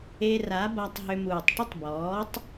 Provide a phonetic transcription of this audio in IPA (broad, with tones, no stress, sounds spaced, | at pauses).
e˧ r a˨˦ b a˧ tˤ ɦ ʏ˧ m uː˨ tˤ ʈ ʏ˦ tˤ b ɔː˨˦ tˤ